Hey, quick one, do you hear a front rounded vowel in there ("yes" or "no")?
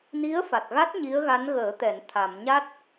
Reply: no